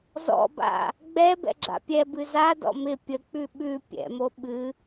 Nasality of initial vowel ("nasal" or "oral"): oral